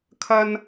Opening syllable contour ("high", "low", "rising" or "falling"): high